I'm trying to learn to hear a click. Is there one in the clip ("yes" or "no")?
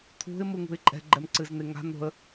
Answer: yes